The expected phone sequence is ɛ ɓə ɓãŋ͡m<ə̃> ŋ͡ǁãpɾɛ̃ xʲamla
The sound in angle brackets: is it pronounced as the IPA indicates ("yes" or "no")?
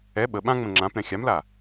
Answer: yes